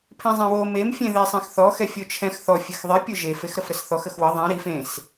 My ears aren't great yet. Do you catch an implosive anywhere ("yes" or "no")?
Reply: no